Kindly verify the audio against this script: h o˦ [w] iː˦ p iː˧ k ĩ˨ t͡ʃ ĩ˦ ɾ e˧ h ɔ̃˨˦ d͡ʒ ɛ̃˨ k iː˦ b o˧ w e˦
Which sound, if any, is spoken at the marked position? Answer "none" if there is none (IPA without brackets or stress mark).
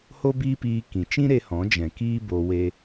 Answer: b